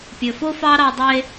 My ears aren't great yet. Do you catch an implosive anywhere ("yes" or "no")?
no